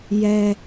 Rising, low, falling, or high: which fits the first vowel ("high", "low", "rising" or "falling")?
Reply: low